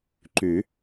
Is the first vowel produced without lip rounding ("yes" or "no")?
no